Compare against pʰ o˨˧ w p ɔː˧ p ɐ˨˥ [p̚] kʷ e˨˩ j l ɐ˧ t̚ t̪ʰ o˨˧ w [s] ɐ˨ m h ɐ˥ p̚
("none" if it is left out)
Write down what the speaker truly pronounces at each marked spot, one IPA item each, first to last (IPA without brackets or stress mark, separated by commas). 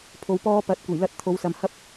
t̚, s